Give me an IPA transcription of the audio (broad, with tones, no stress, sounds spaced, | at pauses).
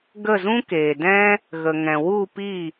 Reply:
ɡ ə˦˨ z ũ˦ k eː˨ d ɛ̃˦ | ɣ ə˨ ŋ ɛ̃˨ w u˦˨ p i˦˨